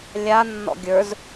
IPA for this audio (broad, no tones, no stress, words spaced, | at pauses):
lʲa nːɔ̰ɡʲə˞z